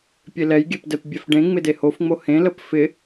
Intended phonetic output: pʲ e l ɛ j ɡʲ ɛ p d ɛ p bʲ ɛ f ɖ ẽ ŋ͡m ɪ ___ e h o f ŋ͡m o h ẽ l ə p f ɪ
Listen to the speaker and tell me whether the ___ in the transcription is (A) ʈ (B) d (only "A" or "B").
B